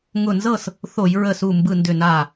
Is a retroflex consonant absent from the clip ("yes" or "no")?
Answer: yes